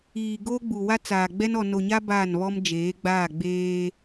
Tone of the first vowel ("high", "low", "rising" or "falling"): low